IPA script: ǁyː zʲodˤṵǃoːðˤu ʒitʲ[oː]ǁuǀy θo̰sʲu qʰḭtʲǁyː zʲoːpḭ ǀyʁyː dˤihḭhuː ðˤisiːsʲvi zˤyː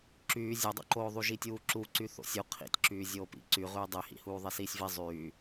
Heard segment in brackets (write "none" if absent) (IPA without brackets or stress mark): uː